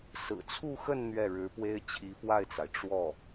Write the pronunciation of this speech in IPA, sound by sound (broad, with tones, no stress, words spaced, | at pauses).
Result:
sɹ̩˨˩t͡sʰu˥˧xə˥˧n n̪ɥɛ˥˩ɻɻ̩˧˥pwe˥ɪ̯ t͡ɕʰi˧˥fwa˥˩ɪ̯t͡sa˩ɪ̯ ʈ͡ʂwɔ˥˩